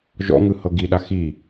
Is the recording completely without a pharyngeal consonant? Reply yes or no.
yes